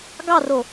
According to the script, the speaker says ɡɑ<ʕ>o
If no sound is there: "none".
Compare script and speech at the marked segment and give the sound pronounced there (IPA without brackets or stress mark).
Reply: r